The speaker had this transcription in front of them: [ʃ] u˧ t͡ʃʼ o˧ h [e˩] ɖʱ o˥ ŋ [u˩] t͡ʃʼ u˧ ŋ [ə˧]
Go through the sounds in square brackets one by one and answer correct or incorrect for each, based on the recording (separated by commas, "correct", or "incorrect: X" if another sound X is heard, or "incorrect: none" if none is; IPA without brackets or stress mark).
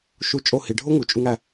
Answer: correct, incorrect: i˩, correct, incorrect: æ˧